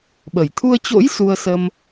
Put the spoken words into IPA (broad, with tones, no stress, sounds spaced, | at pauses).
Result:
ɓ ə˧˩ j t̪ʰ u˧ ə̯ t͡ɕ o̰˧˥ j s u˧ ə̯ s ə˧ m